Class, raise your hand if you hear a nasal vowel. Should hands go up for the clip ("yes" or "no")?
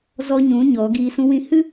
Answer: yes